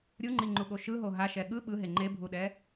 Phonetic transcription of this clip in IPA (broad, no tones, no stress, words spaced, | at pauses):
ɾʲuŋ͡ǃiŋ͡ǃuɠo ʃɯɦo ɦaʃɛ ɠɯ ɓɯɦe ŋ͡ǃebʱuɗɛ